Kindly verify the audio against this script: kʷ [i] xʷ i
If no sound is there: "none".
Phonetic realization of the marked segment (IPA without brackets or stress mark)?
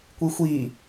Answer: i